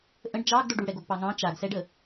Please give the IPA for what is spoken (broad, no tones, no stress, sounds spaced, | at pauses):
ʔ ə̃ ɖ d͡ʒ ɑ ɡ d o ɖ u ɽ ɛ ɡ o ɡ p ɑ ŋ ɑ̃ t͡ʃ a ɡ s ɛ ɖ ə